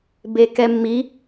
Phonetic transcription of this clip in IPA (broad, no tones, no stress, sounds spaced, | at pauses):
b e k ɛ mː i